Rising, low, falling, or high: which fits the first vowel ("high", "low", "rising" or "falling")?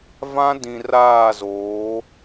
high